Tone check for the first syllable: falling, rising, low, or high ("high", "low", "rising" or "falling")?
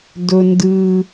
low